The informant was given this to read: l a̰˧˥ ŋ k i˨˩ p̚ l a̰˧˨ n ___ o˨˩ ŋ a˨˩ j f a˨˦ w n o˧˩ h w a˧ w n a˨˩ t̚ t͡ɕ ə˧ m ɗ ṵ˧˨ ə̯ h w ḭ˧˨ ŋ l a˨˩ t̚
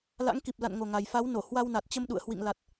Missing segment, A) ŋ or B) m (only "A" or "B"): A